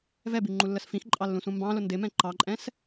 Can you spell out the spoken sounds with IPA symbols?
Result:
vɛbi ŋ͡ǃulːəsfĩxǃʼɑ lːũsũmbɑ̃lʊ ndɪmɛ̃ ǃɑǃʼɛ̃s

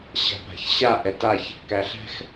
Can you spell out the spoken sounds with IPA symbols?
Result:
ɕa̤pa̤çɕa ʔɛtaç | kæɬɛ̤x

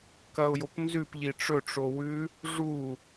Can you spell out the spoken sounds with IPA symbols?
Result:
kɐʊ̯jopnzʉp ʎiʈ͡ʂɵ ʈ͡ʂowʉ | ʐu

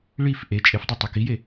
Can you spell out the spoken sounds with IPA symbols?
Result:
ɭif ʔe t͡ʃʼefdˤe tˤøkije

